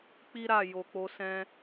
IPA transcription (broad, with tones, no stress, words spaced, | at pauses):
k͡pi˦ɾa˦˨ jo˨k͡po˧sɛ̃˦